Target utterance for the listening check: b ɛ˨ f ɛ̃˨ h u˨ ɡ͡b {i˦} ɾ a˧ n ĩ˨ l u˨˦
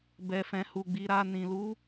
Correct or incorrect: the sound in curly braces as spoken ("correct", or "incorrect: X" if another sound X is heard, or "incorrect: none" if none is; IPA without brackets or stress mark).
incorrect: i˨